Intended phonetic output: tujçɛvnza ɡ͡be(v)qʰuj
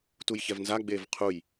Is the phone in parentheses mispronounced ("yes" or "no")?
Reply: no